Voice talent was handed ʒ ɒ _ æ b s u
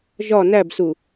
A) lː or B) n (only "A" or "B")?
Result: B